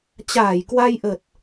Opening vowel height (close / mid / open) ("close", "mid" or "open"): open